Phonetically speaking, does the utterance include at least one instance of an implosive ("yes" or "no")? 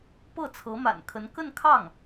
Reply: no